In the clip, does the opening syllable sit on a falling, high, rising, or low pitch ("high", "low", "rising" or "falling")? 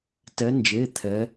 rising